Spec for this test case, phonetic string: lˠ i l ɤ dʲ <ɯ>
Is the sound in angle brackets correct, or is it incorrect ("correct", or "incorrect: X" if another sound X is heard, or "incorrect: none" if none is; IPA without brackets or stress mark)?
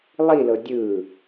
correct